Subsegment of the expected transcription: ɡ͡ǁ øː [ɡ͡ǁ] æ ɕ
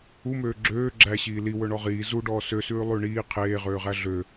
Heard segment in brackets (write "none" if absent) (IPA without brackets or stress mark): ɡ͡ǁ